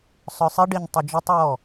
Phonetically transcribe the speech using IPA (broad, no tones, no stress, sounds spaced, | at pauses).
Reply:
sˤ œ sˤ i ɖ i ɲ tˤ i d͡ʒ i tˤ ɹ ɔ